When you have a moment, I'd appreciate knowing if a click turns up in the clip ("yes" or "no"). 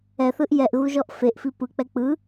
no